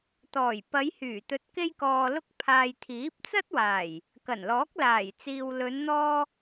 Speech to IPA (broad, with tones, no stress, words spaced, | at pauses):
t̪ɔː˨˩j pɐ˨˧jhyː˨˩t̪ɵ˨˥t̚ke˧j kɔː˨lʊ˧k̚pʰaː˨j t̪ʰiː˨˥p̚t͡sɐ˥t̚waː˨˩j | kɐ˨˩nlɔː˨˥k̚ laː˨˩jt͡siː˨w lɵ˨˧nn̪ɔː˧